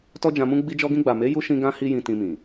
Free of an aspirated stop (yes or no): yes